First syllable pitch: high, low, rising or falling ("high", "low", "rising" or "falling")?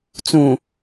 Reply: low